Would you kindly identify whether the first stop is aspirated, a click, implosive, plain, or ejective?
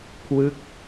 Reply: aspirated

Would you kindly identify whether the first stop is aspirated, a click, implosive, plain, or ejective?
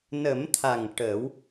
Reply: aspirated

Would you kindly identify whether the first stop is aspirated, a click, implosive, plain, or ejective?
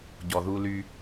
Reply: plain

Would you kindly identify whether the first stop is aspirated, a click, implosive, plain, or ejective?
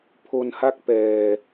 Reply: aspirated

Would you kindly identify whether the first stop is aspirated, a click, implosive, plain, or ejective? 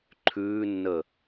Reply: click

